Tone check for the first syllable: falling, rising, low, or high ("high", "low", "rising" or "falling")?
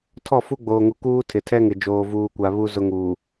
falling